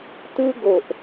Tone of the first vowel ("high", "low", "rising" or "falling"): high